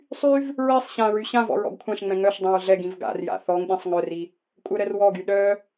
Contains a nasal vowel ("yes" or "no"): yes